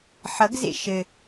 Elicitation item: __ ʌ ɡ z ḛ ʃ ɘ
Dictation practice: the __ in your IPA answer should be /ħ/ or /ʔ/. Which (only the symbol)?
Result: ħ